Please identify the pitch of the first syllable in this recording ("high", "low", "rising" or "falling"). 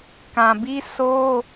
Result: low